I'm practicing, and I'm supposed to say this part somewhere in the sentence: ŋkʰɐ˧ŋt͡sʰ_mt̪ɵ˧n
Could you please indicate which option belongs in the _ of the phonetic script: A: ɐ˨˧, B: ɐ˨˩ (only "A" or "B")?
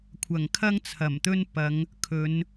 B